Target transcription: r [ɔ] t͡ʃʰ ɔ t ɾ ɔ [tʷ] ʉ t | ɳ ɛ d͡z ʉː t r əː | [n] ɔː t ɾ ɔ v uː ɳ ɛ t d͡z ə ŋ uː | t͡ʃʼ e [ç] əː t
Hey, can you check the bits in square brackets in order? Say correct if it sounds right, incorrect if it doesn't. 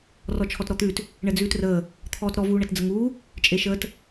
correct, incorrect: t̪, incorrect: t̪ʰ, incorrect: ʃ

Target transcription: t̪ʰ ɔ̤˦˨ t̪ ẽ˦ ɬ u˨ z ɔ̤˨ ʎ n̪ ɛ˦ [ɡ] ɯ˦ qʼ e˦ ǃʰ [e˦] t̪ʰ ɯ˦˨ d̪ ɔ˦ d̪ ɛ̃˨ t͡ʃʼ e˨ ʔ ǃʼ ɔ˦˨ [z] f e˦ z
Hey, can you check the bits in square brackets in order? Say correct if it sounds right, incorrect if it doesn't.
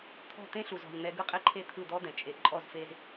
correct, correct, correct

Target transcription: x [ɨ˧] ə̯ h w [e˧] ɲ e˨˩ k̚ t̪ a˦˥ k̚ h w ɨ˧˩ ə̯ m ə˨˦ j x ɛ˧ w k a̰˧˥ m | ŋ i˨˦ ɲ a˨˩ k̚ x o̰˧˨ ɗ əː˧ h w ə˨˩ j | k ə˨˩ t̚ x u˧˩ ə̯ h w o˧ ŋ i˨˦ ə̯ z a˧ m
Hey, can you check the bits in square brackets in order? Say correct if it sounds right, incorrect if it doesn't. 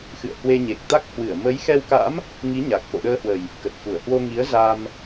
incorrect: ɨ̰˧˨, correct

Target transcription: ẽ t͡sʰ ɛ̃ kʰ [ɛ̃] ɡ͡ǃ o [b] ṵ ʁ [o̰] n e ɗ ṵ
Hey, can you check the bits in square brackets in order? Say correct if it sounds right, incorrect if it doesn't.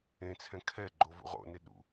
incorrect: ɛ, incorrect: v, correct

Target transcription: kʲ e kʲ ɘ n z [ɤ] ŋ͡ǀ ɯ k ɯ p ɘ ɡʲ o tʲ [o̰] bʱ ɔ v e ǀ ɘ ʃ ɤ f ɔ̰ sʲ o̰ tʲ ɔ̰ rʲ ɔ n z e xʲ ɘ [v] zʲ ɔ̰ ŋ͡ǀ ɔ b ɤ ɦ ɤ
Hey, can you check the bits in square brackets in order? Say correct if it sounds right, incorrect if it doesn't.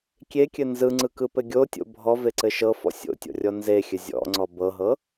incorrect: ɯ, correct, incorrect: none

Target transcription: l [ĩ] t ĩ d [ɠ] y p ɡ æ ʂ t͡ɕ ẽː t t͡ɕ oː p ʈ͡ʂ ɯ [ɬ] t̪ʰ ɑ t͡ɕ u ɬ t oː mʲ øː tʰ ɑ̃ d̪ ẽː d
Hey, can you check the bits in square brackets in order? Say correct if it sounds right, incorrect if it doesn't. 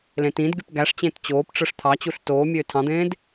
incorrect: ẽ, incorrect: ɡ, incorrect: ʂ

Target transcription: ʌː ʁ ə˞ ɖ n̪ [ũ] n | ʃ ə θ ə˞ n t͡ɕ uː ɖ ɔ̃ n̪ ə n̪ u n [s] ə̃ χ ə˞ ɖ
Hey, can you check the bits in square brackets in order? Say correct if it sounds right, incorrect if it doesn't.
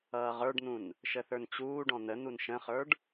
correct, incorrect: ʃ

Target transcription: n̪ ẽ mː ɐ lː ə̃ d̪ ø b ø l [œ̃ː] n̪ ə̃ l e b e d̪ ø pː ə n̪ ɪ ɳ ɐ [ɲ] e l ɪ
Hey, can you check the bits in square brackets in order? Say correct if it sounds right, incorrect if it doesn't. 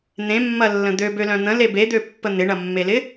incorrect: œ̃, incorrect: mː

